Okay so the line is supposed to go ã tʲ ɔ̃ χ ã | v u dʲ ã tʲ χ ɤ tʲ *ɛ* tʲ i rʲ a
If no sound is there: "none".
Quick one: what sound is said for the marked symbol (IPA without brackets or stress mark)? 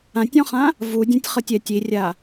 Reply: ɛ